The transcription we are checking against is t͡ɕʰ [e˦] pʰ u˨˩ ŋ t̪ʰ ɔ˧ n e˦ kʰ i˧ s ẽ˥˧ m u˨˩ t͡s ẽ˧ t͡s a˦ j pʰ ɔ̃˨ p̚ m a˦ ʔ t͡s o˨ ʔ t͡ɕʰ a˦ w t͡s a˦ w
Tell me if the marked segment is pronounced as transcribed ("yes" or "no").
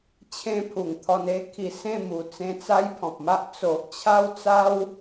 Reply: no